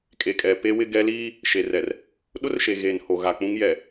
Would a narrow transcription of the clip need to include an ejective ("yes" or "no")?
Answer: yes